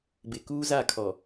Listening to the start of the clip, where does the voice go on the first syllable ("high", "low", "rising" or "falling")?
low